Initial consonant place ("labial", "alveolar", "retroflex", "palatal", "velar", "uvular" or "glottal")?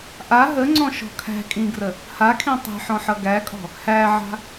glottal